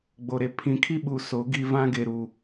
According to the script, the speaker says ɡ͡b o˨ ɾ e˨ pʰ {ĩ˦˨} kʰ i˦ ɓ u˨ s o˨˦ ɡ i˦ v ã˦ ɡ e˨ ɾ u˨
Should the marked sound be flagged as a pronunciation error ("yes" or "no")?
yes